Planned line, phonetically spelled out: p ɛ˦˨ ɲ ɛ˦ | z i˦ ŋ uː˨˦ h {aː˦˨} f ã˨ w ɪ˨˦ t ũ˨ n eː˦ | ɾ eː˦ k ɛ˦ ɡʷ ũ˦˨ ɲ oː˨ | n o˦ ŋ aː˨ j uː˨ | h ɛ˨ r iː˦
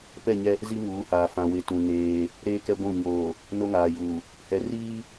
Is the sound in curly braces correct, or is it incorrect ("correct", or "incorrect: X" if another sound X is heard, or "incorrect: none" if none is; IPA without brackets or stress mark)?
incorrect: aː˨